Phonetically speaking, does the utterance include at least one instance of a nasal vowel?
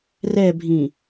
yes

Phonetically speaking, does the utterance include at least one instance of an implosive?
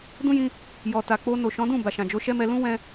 no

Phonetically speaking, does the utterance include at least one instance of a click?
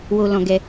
no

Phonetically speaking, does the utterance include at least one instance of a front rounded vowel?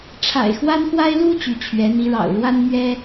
yes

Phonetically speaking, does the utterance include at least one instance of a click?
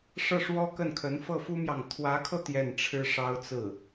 no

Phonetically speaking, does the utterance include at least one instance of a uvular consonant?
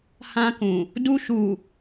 no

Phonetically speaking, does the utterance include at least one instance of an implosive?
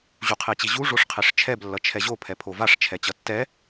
no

